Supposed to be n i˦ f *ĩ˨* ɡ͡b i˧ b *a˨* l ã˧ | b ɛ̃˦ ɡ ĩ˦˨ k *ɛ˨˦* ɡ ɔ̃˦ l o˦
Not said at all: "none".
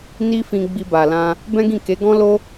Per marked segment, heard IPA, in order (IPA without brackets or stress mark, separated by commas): ĩ˧, a˨, e˨˦